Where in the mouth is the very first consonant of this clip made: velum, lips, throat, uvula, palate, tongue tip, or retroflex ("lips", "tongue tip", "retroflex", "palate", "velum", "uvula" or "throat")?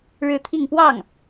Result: retroflex